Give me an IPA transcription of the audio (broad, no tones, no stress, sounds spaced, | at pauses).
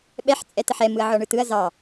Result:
ɓ ɛ ħ t͡sʼ ɛ t ə ħ ɛ m ɯ ɐ̯ ʕ ɔ ɳ ɯ t ɯ ɐ̯ z ɑ